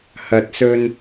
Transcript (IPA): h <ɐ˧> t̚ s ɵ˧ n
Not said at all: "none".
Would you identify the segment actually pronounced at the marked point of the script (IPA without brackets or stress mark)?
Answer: ɐ˨˥